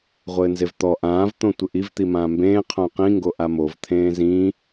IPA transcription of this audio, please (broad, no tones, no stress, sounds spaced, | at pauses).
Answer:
ʁʷ ɘː n z e v t̪ ɔ ʔ ãː v t̪ õ tʷ ɘ ʔ i v t̪ i m ãː m b ẽː qʰ õ q ĩ ŋ ɡ o ʔ a m o v t̪ʰ ẽː z ĩ